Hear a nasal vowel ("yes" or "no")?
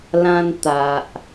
yes